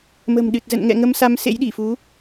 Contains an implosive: yes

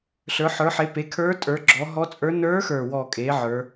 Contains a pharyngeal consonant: yes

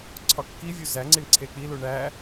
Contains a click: yes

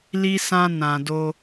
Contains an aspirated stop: no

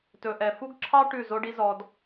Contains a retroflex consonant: yes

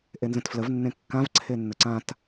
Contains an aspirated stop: yes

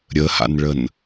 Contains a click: no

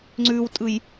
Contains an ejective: yes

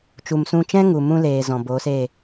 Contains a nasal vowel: yes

